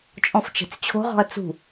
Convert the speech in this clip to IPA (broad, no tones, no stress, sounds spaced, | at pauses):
t͡ʃʼ ɔ̃ f t͡ʃ e̤ t͡s t͡ɕʰ o̤ ʁ ɔ̤ ɐ̯ t͡s ṳ